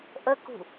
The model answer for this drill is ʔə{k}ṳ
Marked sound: correct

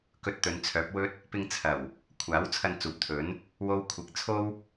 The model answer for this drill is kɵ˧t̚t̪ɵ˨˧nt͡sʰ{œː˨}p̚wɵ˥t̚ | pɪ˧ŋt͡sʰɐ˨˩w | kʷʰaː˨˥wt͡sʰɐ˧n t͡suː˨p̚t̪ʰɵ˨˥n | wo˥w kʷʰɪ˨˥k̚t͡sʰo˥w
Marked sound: incorrect: œː˨˥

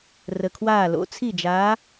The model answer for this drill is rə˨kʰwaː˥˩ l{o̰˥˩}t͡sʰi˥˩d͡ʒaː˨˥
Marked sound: incorrect: o̰˨˥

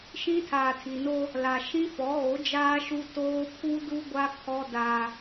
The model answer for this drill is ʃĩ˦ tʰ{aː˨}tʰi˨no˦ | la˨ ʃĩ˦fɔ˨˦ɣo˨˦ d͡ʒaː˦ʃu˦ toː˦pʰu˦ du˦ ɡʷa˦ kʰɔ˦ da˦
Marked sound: correct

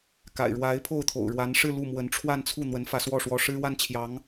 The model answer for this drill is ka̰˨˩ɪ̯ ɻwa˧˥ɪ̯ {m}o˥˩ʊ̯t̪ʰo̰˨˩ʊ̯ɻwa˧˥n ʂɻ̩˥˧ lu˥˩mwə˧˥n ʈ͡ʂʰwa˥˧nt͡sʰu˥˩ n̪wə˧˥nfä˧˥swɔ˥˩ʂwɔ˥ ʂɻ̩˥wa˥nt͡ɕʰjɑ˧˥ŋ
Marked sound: incorrect: pʰ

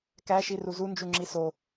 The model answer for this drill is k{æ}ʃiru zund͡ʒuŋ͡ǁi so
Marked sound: correct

